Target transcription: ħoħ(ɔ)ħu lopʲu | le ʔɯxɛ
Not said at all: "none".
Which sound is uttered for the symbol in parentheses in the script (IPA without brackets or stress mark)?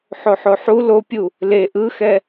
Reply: o